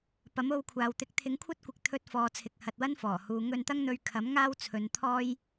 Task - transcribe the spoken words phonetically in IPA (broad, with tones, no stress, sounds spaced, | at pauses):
p ɐ˨˥ m o˧ w kʷʰ aː˨ w t̪ ɪ˨˥ k̚ t̪ʰ ɪ˨˥ ŋ kʷʰ ɐ˥ t̚ kʷ ɪ˨ k̚ t̪ʰ ɵ˧ t̚ f ɔː˨ t͡sʰ ɪ˨ k̚ h ɐ˨ t̚ w ɐ˥ n f ɔː˨˩ h uː˨˧ ŋ ɵ˧ n t̪ ɐ˥ ŋ n̪ ɵ˧ ɥ kʰ ɐ˨˥ m ŋ aː˥ w t͡sʰ ɵ˨˧ n t̪ʰ ɔː˥ j